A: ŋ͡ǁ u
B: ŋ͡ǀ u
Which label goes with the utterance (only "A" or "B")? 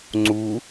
B